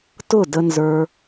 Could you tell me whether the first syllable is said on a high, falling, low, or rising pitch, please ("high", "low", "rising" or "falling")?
falling